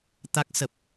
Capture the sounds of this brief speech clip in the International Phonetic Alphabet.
t̪ a˦˥ k̚ s ə˨˩ p̚

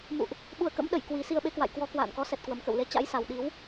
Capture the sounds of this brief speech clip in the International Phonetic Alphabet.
m ṵ˧˨ ʔ | ɓ u˨˩ ə̯ k ə̰˧˥ m ɗ ə˧˩ j k w i˨˩ s i˧ ə̯ ɓ e˨˦ k w a̰˧˨ j k w ɔ˨˦ k w a̰ː˧˨ n k ɔ˨˦ s ɛ˨˩ t̚ k w ə˨˩ m k ə̰˧˨ w l e˧ t͡ɕ a̰˧˥ j s a˨˩ w ɗ i˨˦ w

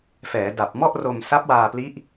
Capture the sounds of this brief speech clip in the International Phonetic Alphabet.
f ɛː˩˦ d a˨˩ p̚ m ɔ˥˩ ʔ r o˧ m s a˦˥ p̚ w aː˧ p l i˦˥ ʔ

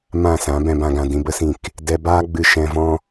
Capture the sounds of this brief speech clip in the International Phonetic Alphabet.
m ã˦˨ s ã˨˦ b ɛ̃˨ b ã˨ ɡ ã˨ d ĩ˧ b ə˦ s ĩ˦˨ k | d ɛ˧ b aː˦ ɡ͡b ɨ˧ ʃ ɛ̃˧ v ɔ̃˦

